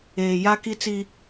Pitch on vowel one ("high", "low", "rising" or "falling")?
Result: low